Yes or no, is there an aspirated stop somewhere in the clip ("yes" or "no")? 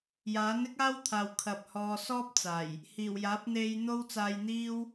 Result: yes